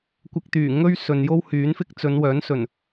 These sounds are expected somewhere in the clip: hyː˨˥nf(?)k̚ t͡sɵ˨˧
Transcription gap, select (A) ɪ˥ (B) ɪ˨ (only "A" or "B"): A